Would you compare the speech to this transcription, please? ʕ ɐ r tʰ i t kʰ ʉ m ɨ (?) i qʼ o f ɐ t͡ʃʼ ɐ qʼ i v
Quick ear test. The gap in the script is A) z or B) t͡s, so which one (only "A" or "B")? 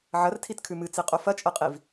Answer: B